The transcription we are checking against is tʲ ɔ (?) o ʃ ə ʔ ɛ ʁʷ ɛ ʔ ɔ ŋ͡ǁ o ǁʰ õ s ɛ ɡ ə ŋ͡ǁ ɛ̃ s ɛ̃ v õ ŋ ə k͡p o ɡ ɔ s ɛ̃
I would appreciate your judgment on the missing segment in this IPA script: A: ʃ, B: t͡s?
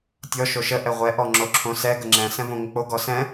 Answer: A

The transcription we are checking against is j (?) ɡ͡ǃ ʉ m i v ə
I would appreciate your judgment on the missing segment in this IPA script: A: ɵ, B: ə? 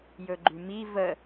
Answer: A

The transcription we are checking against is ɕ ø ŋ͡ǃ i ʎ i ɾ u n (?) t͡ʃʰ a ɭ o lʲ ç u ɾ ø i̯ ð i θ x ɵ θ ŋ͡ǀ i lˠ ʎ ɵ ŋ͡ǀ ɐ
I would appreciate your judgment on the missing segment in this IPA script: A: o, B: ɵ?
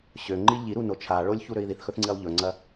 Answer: A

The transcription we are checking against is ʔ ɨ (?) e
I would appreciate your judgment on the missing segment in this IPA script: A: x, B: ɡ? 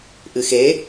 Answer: A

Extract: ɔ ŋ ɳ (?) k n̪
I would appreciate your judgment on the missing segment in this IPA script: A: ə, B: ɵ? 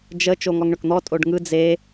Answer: B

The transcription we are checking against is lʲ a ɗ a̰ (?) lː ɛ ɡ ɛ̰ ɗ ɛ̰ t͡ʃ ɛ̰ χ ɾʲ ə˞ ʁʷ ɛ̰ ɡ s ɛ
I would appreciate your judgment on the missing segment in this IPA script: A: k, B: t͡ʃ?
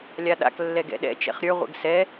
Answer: A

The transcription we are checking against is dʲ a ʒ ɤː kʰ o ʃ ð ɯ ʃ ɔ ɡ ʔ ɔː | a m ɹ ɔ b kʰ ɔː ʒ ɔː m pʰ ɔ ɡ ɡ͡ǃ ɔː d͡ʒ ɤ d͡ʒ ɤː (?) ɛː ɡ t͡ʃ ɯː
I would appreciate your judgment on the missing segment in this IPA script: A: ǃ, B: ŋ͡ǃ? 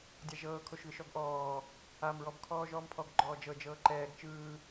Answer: A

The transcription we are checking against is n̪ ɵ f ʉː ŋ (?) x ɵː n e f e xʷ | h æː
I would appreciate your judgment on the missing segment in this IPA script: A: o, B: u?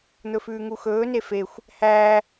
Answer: B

